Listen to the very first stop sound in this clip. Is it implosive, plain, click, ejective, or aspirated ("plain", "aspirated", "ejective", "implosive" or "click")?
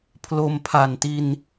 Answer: aspirated